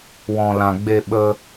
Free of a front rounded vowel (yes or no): yes